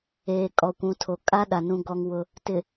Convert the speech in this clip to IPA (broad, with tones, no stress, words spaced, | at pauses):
eː˨kʼɔ˨kʷũ˨˦ tʰo˨kʼa˦ɗa˨ nũ˦ɡɔ˦ŋwʊ˦ | tɪ˨